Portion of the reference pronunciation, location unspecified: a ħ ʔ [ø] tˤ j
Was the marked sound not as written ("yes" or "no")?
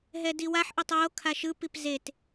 yes